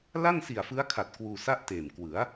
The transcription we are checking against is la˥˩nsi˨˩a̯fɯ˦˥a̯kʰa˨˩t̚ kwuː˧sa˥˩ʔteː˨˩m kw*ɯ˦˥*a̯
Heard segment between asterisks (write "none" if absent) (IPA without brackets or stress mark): ɯ˩˦